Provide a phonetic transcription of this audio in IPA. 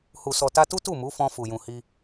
h u˨ s ɔ˨ t a˧ t u˦ t u˦˨ m u˨˦ f ɔ̃˧ f u˨ j ũ˨ h i˧

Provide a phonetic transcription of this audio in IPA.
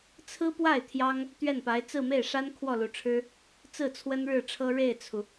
t͡sʰ ɹ̩˥ p w a˥˩ ɪ̯ t̪ʰ j ɑ˥ ŋ | t̪ ɥ ɛ˥˩ n p a˧˥ ɪ̯ t͡s ɹ̩˥˧ m e˥˩ ɪ̯ ʂ a˥ n kʰ w ɔ˥˩ l u˨˩ ʈ͡ʂʰ ɻ̩˥ | t͡s ɹ̩˥˩ t͡sʰ w ə˥ n ɻ ɻ̩˥˩ ʈ͡ʂʰ ɤ˥ ɻ e˥˩ ɪ̯ t͡sʰ u˩

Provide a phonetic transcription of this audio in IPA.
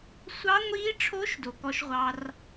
sʷ ɑ˦˥ ŋʷ iː˦˥ ʈ͡ʂʰ oː˦˥ ʃ d o˨ k ɔ˦˥ ʃ ʁʷ ɑ˦˥ r

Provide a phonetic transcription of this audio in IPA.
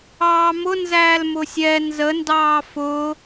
ɑː m ʊ n z æː l m ʊ sʲ ɛ n z ə n d ɑː f ʊ

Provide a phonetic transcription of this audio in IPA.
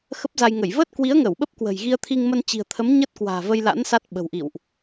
x ə˦˥ p̚ z a˧ j ŋ ə˧˩ j v əː˦˥ t̚ k w i˨˦ ə̯ ŋ ə˧˩ w ɓ ə˦˥ p̚ k w ə̤˨˩ j ɣ i˧ ə̯ t̪ʰ i˧ ŋ m ə˧ n t͡ɕ i̤˨˩ ə̯ t̪ʰ ə˨˦ m ɲ ə˦˥ t̚ k w a̤ː˨˩ v ə˧ j l a̰˧˥ n s a˦˥ t̚ ɓ ə̤˨˩ w ʔ ḭ˧˨ w ʔ

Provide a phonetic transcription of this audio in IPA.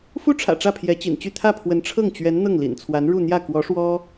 f u˥ ʈ͡ʂʰ ä̰˨˩ ʈ͡ʂ ä˥˩ pʰ j ɛ˧˥ t͡ɕ ḭ˨˩ n t͡ɕ y˥˧ t̪ʰ ä˥˩ pʰ w ə˧˥ n ʈ͡ʂʰ ɤ˥˩ ŋ t͡ɕ ɥ ɛ˧˥ n n̪ ɤ˥˩ ŋ l ḭ˨˩ n t͡sʰ w a˧˥ n ɻ u˥˧ n̪ j ä˥˩ k w ɔ˧˥ ʂ w ɔ˥

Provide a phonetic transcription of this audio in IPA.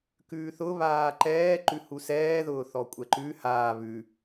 k ʉː θ ʊ β aː ǃ ɛː ǃ ʉ h u s ɛː ð ʊː θ ɔ kʷʼ ɛ ǃ ʉ h aː β ʉ

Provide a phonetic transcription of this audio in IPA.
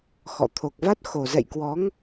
x ɔ̰˧˨ t̪ʰ o˨˩ k̚ v a˦˥ t̚ x o˨˩ z ɛ̰˧˨ j k w ɔ˨˦ ŋ

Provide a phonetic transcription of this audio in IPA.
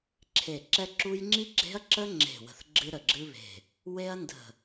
ǁʰ e˧˩ ǁ ɛ˥ ǁ u˥ j ŋ͡ǁ i˥ ɡ͡ǁ e̤˥ ɐ̯ ǁ ə˥ ŋ͡ǁ e̤˧˩ w ə̤˧˩ θ ɡ͡ǁ ɨ˥ ɾ ə˧˩ ɡ͡ǁ ɨ˥ β e̤˧˩ | w e˥ ɐ̯ n d ə̤˧˩

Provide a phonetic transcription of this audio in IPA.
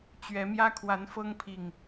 t͡ɕ ɥ ɛ˨˦ m j ä˦ kʰ w a˨˦ n f ɤ˦ ŋ pʰ i˨˩ ŋ

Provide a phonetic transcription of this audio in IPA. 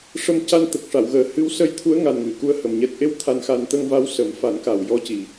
ʂ ə˧ m c a˧ n t̪ ə˨˩ k̚ ʂ a˨˩˨ w ɣ əː˨˩ h ɨ˧˥ w s ə˧ j t̪ʰ u˧˥ ə̯ ŋ a˨˩ n ŋ ɨ˨˩˨ k u˧˥ ə̯ h ə˨˩ m ɲ ɛ˨˩ t̚ ʔ e˧ w t̪ʰ a˧ n x a˧ n t̪ ə˧ ŋ v a˧˥ w s ə˨˩˦ m f a˨˩˦ n k a˨˩ w j ɔ˧ c i˨˩

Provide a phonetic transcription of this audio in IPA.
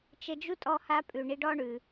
t͡ʃ ə˧ d͡ʒ u˦ tʼ ɔ˦ h a˦ pʼ ʉ˨ ɳ i˧ ɖ ɔ˦ ɳ ʉ˨

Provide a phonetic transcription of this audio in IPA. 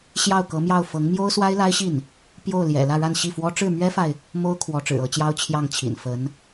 ɕ j ɑ˥˩ ʊ̯ k ɤ˧˥ m j ɑ˥˩ ʊ̯ f ɤ˧˥ ŋ m j o˥ ʊ̯ s w a˥ ɪ̯ l a˥ ɪ̯ ɕ i˥˩ n | p j o˥˩ ʊ̯ l j ɛ̰˨˩ l ä˥˧ ɻ a˥˧ n ɕ i˥˩ f w ɔ˥ ʈ͡ʂ ɻ̩˥˩ m ɥ ɛ˥ f a˨ ɪ̯ | m o˥ ʊ̯ kʰ w ɔ˧˥ ʈ͡ʂ ɻ̩˨˩ ɤ˧˥ t͡ɕ j ɑ˥ ʊ̯ t͡ɕʰ j ɑ˥˩ ŋ t͡ɕʰ ḭ˨˩ n f ə˧˥ n

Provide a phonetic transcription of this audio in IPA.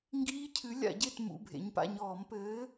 ŋ ɡ iː˦˥ cʰ ɨ˨˥ lʲ a̰˧˩˧ ɟ e˦˨ t m ṵ˩˧˩ bʱ ḛ˩˧ ɲ p a̰˩˧˩ ɲ ɔː˧˩˧ m p ɘː˨˥

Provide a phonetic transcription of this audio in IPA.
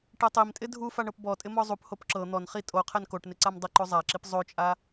ʈ ɛ tˤ i m tʼ ɪ dʱ u f a ɳ ɤ p b ɔ tʼ ɪ m ɔ zˤ u p h o p ǁ ɤ n̪ ɔ n χ i tʼ o qʰ ɛ n k o ʈ n ɪ ǀ a m dˤ ɪ ǃ o zˤ a ǁ i p zˤ o t͡ʃʼ a

